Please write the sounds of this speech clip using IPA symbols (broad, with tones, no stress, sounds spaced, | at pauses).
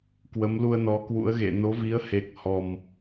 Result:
k w ə˨˦ m l u˧ ə̯ n ɔ˨˦ k w ṵ˧˥ ə̯ ɣ ḛ˧˨ n o˨˦ v i˨˦ ə̯ h e˨˩ k̚ h ɔ˨˩ m